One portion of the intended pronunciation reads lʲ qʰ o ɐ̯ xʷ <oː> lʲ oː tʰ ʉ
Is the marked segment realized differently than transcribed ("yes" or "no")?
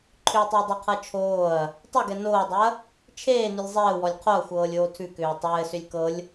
yes